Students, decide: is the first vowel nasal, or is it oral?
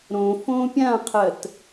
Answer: nasal